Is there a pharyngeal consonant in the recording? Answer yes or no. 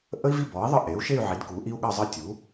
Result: yes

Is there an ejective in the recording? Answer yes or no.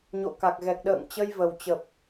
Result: no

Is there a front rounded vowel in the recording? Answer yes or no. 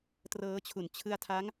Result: no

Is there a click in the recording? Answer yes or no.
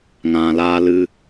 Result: no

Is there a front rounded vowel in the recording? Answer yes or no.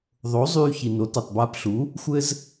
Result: yes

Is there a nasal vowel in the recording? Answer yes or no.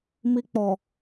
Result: no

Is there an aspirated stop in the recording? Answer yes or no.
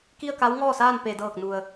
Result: no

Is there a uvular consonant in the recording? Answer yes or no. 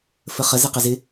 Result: yes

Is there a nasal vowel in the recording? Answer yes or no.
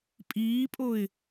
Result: no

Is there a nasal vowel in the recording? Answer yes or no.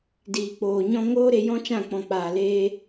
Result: yes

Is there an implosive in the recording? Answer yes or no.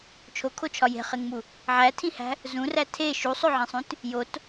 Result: no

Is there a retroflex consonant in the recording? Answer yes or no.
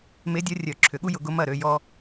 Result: no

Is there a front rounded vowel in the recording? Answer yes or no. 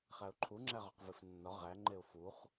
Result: no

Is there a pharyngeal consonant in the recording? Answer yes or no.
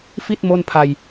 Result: no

